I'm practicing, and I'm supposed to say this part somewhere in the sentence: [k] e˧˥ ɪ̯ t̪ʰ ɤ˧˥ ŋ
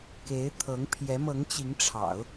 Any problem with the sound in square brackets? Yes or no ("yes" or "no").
no